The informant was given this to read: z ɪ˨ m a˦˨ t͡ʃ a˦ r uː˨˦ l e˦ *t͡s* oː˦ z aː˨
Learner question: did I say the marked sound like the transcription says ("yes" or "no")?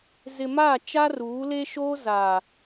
no